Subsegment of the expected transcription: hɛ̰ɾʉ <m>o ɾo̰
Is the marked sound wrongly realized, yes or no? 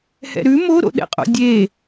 no